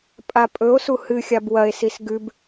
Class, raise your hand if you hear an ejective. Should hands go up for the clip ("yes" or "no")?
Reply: yes